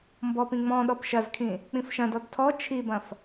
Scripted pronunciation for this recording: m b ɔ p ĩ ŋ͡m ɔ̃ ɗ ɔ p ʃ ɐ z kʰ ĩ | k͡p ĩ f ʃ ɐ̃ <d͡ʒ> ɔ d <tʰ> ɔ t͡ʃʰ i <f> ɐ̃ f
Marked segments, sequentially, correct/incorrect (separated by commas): incorrect, correct, incorrect